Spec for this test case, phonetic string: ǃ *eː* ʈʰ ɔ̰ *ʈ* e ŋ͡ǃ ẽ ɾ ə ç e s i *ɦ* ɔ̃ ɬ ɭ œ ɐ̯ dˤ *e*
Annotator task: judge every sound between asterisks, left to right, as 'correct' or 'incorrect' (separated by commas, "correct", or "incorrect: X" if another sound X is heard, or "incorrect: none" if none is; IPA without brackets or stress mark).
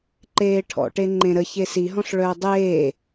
correct, correct, correct, incorrect: eː